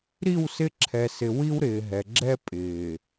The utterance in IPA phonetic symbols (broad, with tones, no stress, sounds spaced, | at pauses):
ɾ i˦˨ w s ɪ˦ ǁʰ ɛ˨ s ɪ˨ w i˦ w ɾ ɪː˨ ɦ ɛ˨ ɡ͡ǁ ɛ˦ pʼ ɪː˨